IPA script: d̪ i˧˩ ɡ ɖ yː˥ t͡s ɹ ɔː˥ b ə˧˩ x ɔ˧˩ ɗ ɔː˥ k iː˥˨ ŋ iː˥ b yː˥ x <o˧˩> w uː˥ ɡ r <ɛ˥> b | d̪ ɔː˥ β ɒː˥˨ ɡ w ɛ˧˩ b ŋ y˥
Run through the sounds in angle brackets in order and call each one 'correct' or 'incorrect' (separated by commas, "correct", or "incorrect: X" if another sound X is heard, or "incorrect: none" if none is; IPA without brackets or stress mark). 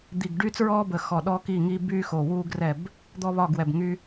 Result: correct, incorrect: ɛ˥˨